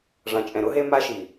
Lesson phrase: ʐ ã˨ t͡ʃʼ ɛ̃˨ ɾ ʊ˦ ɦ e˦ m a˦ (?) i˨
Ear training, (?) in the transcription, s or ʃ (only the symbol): ʃ